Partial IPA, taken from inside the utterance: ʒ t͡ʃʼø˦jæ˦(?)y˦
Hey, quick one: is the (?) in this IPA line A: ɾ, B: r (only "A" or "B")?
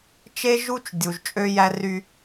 B